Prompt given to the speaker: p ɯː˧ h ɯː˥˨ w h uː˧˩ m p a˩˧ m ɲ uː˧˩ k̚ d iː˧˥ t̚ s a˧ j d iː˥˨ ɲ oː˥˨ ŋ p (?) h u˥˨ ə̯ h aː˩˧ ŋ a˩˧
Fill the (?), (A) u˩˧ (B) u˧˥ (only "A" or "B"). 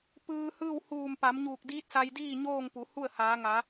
A